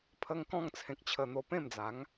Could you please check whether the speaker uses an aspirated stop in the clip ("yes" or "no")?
yes